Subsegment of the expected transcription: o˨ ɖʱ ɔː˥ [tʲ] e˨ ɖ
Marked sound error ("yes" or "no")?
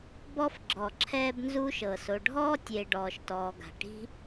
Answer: no